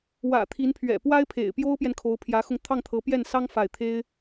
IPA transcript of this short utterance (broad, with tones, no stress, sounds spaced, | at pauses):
w ä̰˨˩ t̪ʰ i˧˥ n pʰ ɥ ɛ̰˨˩ p w a˥ ɪ̯ pʰ ḛ˨˩ ɪ̯ p j o˥ ʊ̯ p j ɛ˨ n kʰ o˧˥ ʊ̯ pʰ j ä˧˥ x ʊ˧ ŋ t̪ʰ ɑ˥˩ ŋ t̪ʰ ɤ˧˥ p j ɛ˥˩ n s ɑ˥ ŋ f a˥˩ ɪ̯ t̪ʰ e˥ ɪ̯